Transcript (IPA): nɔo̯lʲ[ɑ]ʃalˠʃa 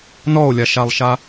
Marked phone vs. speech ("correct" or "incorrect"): incorrect